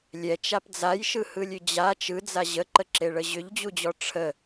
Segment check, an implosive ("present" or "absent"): absent